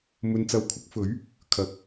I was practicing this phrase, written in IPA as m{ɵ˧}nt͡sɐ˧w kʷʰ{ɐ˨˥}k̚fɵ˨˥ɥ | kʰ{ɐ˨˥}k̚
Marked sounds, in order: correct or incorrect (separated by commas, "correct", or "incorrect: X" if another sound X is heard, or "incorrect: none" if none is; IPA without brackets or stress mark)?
correct, correct, correct